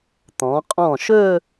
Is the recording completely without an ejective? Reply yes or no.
no